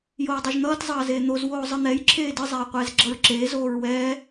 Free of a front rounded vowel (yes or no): yes